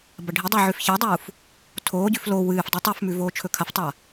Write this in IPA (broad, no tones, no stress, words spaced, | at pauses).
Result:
bɐɖʱidˤʉ ʕʉfçadˤuːf | tʰoːɟʉf lo wɨːf dˤitˤɵfmʉ voːt͡ʃʰɵkʰɐftˤa